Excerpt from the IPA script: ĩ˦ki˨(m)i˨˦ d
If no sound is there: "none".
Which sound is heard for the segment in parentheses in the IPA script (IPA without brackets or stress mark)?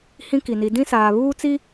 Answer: n